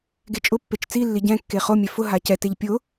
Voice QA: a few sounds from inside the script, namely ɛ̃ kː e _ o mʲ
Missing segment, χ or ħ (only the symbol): χ